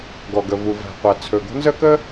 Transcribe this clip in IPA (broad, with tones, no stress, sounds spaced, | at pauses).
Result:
ɡ ɔ˩ ɡ ə˩ v u˩ v æ̤˩ qʷ æ˩ t͡sʰ ɵ˩ ɡ o̤˥ n z ə˥ k ə˥